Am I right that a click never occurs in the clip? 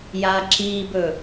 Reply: no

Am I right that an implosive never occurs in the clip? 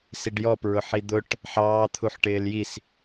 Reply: yes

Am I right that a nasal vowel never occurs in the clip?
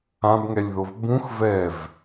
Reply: no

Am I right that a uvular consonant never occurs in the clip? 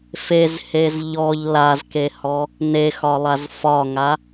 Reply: yes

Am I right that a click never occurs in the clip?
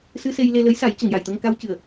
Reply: yes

